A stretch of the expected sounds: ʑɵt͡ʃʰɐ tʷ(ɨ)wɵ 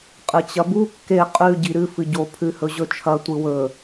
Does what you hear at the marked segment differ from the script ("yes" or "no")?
no